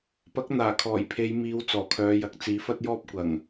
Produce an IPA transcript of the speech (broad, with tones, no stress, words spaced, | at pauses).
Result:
pɐ˨˥k̚ n̪aː˨˩kʰɔː˨˩jpʰe˨˧jmiː˨˧w t͡sɔː˨˩kʰœː˨˧jɐ˨k̚ t͡siː˨˥fɐ˥t̚jɔː˥p̚ kʷɐ˨˩ŋ